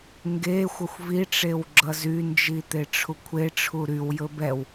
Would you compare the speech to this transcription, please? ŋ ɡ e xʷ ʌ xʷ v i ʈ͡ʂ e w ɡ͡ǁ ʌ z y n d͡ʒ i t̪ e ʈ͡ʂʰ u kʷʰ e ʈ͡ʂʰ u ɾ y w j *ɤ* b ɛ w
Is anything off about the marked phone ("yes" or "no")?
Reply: yes